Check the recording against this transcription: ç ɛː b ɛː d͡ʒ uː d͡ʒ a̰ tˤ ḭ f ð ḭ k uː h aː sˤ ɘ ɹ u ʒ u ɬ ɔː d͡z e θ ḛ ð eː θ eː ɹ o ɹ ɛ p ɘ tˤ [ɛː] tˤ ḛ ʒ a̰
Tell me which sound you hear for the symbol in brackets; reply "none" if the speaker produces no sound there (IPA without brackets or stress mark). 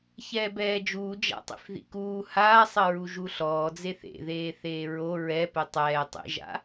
ɛː